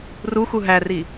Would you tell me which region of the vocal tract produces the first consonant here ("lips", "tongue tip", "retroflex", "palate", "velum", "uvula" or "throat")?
tongue tip